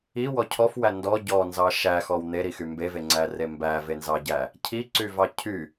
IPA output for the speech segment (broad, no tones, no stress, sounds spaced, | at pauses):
i w ɔ cʰ ɔ f w æ n d ɔ ɟ ɔ n z ɑ ʃ æ x ɔ w n̪ e ɾ i x y m b e v e ŋ͡ǀ æ r e m b æ v e n z ɑ ɟ æ | cʰ i ǀ y v ɑ cʰ y